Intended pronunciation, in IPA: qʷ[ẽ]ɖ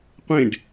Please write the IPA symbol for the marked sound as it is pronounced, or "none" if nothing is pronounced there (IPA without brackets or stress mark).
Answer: ẽ